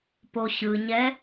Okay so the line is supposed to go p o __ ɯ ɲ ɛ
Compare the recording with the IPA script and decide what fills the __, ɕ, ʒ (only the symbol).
ɕ